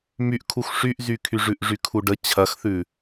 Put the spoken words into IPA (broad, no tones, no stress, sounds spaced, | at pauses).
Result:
m y ʔ kʰ u x ʂ y ʔ z y kʰ y ʐ ʉ ʔ ʐ y kʰ u ɖ ə t͡ɕʰ ɐ x θ ʉ